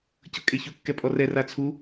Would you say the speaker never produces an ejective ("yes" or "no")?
no